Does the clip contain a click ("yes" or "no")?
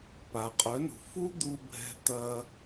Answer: no